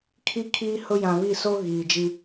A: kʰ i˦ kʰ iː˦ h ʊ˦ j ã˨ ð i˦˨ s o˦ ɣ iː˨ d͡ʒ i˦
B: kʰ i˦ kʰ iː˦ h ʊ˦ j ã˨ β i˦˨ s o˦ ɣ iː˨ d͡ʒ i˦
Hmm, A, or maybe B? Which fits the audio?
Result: B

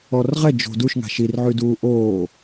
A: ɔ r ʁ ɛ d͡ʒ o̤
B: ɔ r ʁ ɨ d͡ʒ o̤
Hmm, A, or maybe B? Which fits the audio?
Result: A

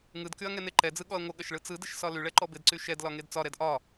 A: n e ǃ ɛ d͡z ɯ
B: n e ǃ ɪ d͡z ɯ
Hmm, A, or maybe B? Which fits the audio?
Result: A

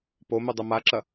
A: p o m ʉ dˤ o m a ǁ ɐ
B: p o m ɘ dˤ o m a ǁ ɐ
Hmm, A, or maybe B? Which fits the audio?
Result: A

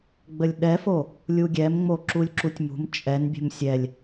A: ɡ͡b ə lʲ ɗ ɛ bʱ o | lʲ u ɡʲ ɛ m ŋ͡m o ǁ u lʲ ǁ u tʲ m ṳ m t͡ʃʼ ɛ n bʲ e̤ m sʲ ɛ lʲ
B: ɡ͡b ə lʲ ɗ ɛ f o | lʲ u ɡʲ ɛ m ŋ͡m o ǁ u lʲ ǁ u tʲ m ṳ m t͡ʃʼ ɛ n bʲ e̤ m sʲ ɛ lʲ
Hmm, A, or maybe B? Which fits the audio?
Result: B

